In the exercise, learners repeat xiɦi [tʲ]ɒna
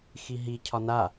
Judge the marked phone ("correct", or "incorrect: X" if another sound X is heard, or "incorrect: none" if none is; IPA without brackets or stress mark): incorrect: cʰ